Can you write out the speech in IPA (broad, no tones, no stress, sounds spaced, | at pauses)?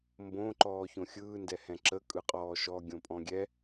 m b õ ǃ ɔː ç õ xʲ ɯː n d ɛ h ɛ̃ ǁ ə kʼ ɯ qʼ ɔː ʃ ɔ ɡʲ õ pʼ ɔ̃ ɡʲ ɛ